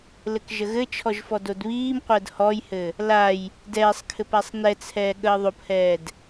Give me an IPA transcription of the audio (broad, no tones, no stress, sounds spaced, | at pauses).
l ɘ k ʒ ə ɣ ɘ t͡ʃʰ ɔ ʒ f ɔ d o d β iː m qʷ əː d h ɔ j h ɘ | l a j | d ɛː sˤ kʰ ɘ p a sˤ n ɛ t͡sʰ ɛː ɠ əː ðˤ o p h ɛː d